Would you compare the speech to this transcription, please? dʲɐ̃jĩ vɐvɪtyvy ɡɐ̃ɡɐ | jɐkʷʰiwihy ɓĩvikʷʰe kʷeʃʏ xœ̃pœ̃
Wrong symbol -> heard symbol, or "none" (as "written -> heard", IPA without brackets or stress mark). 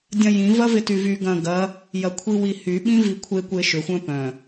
x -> xʷ